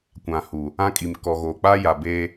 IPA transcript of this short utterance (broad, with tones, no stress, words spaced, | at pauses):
kʷã˨hu˨ | ã˦ kʼi˨m kɔ˨ ɣoː˨k͡paː˦ja˨ be˦